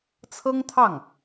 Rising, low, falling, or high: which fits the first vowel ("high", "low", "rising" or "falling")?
high